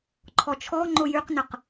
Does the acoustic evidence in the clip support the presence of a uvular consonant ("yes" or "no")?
yes